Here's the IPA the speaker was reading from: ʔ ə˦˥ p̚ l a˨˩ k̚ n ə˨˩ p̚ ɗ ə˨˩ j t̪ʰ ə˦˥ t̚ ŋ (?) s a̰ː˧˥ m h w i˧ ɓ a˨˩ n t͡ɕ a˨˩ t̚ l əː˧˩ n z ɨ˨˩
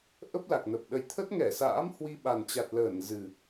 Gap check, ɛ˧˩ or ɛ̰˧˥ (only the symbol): ɛ˧˩